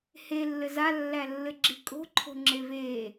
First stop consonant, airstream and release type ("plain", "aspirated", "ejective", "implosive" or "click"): click